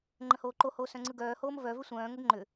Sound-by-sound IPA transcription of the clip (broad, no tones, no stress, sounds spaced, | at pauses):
ŋ͡ǃ ə̃ h oː ǃ o h oː s œ̃ ŋ͡ǀ ɯ ɡ œː h oː m v œ v ʏ sʷ œ̃ː ŋ ə ɡ ŋ͡ǃ ʏ